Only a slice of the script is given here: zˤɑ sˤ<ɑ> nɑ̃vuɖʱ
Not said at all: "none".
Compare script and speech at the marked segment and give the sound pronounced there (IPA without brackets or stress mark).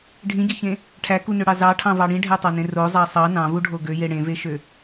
ɑ